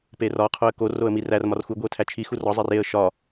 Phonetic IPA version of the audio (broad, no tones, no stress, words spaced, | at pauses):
perɒ qʰoə̯kor oə̯mirær mɒrxu ɡʷiə̯tʰæt͡ʃʰi xurɒ zˤereə̯ ʃɒ